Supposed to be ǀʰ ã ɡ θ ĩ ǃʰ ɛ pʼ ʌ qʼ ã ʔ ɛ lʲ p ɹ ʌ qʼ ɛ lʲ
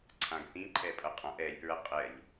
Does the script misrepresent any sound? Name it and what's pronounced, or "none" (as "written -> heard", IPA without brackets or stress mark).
none